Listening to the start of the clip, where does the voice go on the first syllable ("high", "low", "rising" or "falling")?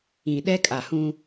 low